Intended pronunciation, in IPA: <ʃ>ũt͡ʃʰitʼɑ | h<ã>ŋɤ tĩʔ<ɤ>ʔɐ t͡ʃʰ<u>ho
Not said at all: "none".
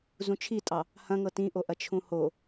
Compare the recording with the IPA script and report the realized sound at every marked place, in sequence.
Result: z, ɐ̃, o, ũ

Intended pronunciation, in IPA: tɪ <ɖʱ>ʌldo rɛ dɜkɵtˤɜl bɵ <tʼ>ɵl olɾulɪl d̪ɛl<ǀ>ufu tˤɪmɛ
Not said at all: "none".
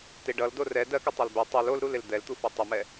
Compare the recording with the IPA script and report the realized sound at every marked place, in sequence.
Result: ɖ, tˤ, t̪

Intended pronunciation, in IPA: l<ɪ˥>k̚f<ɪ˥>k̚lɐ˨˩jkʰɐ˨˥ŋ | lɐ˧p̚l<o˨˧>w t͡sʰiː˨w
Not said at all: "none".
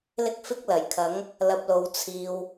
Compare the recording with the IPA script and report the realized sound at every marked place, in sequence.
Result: ɪ˥, ɪ˥, o˨˧

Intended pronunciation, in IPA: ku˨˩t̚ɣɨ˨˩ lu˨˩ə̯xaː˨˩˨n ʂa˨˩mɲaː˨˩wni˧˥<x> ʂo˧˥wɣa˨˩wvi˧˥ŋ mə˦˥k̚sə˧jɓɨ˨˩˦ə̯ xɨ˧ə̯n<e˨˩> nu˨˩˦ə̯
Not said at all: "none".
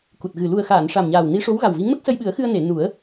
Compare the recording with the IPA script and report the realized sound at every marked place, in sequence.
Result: none, e˨˩˨

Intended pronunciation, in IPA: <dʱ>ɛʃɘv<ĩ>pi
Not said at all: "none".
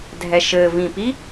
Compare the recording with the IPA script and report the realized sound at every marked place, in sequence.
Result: dʱ, ĩ

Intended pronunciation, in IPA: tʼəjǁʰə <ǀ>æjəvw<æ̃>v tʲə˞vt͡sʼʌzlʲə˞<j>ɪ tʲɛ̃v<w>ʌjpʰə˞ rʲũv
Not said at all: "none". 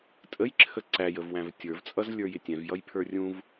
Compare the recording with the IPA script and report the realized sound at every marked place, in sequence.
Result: ǀ, æ̃, j, j

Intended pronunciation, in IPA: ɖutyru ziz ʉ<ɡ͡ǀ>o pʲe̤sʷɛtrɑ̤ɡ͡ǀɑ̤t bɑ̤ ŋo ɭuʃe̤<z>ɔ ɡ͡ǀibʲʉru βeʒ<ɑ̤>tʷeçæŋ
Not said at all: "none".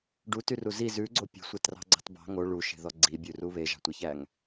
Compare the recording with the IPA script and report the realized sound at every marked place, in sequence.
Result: ɡ͡ǀ, ð, ɑ̤

